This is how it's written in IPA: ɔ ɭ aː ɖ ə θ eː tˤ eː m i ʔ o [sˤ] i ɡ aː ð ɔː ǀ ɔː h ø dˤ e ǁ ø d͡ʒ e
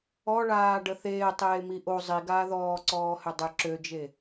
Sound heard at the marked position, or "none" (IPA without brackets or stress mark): zˤ